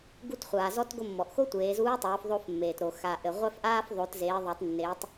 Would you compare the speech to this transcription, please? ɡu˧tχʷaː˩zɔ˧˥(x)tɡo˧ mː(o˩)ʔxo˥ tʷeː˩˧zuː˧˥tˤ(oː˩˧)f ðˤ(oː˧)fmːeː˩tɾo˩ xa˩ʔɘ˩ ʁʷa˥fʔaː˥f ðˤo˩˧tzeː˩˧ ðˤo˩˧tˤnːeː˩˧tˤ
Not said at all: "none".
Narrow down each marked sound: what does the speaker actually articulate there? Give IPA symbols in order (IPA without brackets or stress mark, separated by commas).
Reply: none, ɔ˩, oː˩˧, o˧